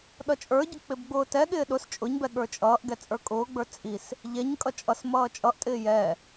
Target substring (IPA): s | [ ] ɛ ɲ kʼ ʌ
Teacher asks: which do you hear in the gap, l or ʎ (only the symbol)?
ʎ